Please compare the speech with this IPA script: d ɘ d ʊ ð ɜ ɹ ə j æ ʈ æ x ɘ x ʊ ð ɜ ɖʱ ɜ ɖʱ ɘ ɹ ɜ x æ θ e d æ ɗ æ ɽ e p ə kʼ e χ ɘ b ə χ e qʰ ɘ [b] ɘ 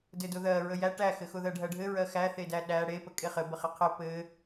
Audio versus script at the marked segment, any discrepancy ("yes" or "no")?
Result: yes